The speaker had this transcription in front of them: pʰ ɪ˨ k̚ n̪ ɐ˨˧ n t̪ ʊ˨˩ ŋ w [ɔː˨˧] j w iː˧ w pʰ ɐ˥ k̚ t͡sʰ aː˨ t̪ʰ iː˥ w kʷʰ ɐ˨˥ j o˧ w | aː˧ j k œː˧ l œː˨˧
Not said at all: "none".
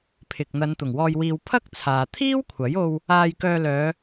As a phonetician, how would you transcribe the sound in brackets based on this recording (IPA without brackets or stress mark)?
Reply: ɔː˧